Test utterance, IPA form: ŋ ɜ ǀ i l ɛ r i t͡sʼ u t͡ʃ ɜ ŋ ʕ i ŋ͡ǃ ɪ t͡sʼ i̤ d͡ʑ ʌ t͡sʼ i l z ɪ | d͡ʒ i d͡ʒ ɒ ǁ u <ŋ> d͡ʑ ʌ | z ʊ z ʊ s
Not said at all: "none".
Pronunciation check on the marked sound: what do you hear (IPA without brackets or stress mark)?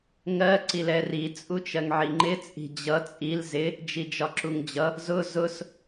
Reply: ŋ